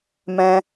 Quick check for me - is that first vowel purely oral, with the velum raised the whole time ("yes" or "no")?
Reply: no